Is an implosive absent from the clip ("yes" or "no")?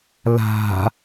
yes